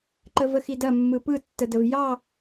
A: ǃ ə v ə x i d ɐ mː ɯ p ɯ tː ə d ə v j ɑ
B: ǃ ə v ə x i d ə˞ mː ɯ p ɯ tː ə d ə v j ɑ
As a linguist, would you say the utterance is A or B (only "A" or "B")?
A